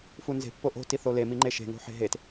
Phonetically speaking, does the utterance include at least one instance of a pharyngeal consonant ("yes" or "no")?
yes